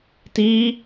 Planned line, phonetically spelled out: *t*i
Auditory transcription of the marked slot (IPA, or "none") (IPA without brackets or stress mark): t